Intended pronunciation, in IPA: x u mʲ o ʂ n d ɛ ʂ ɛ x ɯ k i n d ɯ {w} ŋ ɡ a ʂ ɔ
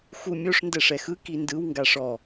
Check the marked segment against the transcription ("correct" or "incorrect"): correct